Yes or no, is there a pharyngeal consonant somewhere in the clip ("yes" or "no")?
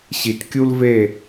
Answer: no